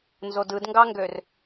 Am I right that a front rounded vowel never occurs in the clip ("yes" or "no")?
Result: no